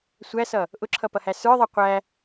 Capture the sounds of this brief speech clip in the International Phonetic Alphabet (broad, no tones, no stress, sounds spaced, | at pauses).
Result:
sʷ æ s ʌ | ʔ ʊ ǁʰ ʌ p ʌ h æ s ə˞ ðˤ æ qʷ æ